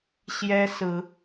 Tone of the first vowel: high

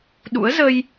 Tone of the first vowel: rising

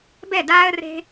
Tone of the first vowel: falling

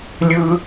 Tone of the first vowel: high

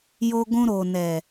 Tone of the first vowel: high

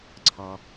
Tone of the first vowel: low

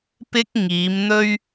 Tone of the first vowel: high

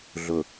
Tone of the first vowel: low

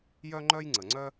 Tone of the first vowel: high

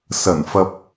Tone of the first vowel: low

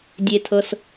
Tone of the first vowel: low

